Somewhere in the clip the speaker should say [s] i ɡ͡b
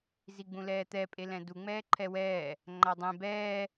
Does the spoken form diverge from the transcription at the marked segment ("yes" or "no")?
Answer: yes